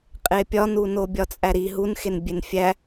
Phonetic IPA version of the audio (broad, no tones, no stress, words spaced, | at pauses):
qʼepʲɒnuno bʲɒt͡sʼæɾi ɦunxenbʲen fʲæ